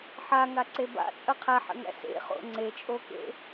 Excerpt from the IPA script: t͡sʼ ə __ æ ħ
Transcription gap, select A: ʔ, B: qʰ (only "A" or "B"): B